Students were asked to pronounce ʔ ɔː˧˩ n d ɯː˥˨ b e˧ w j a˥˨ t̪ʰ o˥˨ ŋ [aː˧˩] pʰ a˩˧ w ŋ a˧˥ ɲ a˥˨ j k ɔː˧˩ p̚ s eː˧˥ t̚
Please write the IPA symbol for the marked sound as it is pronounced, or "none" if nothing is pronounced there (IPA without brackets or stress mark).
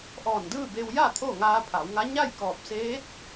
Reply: aː˧